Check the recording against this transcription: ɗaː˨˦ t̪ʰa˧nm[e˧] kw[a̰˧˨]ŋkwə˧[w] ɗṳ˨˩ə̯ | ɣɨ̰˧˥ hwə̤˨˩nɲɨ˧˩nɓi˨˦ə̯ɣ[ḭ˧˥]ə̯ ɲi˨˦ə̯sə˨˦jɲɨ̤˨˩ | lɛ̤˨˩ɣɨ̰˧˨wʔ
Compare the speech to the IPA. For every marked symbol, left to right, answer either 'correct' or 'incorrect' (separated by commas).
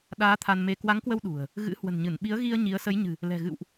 correct, incorrect, correct, incorrect